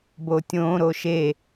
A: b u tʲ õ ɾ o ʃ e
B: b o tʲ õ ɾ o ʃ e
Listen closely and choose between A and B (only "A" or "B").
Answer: B